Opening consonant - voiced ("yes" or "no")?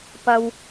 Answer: no